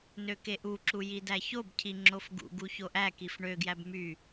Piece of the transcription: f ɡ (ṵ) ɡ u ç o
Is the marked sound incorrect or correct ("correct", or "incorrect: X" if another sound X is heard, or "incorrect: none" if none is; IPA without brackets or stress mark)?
correct